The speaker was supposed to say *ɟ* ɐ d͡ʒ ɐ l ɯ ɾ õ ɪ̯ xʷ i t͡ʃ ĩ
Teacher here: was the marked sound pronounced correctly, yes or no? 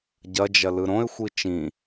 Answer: yes